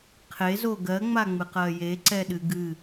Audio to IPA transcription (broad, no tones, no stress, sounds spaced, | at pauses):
qʰ e z o ɡ ɜ ŋ͡m a ŋ͡m ɨ q ɜ j e ǀ ɛ ɗ ɨ ɡ ɨ